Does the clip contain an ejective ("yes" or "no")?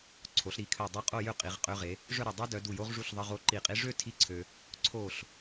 yes